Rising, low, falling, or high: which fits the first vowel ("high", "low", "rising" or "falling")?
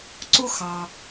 high